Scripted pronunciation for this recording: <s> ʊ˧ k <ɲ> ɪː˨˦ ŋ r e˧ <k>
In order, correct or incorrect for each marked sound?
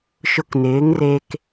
incorrect, incorrect, correct

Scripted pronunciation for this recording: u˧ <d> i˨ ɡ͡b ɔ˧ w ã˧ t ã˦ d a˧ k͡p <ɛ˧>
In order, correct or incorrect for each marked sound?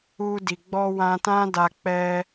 correct, correct

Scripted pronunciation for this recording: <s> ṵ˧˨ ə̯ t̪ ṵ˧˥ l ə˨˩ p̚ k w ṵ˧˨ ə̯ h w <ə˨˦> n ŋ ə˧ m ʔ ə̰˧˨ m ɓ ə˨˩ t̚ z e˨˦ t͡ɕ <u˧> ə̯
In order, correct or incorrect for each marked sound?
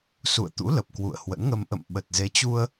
correct, incorrect, correct

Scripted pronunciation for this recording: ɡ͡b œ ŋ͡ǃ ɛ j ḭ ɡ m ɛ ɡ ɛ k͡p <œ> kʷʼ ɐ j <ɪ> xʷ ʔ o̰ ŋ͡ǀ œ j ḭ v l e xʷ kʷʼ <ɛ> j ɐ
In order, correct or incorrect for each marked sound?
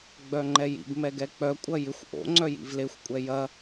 correct, correct, correct

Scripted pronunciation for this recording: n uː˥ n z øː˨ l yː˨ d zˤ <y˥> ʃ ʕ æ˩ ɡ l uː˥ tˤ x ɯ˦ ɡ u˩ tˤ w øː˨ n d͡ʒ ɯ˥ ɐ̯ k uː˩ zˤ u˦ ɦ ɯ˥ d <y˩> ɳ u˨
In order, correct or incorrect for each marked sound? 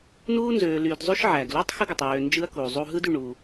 correct, incorrect

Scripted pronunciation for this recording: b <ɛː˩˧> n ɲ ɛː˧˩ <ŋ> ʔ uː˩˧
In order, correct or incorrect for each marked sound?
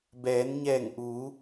correct, correct

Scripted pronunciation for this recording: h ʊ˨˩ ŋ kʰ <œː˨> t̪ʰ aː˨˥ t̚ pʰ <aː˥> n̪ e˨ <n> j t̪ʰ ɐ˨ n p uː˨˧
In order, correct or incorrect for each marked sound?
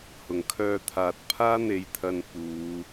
incorrect, correct, incorrect

